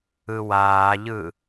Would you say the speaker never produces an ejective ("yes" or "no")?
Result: yes